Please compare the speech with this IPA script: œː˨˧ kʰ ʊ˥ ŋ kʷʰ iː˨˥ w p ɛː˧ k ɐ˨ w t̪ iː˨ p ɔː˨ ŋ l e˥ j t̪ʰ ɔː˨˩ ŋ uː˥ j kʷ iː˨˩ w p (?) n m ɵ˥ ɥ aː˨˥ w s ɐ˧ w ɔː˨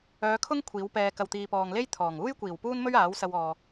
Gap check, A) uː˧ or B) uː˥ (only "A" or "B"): B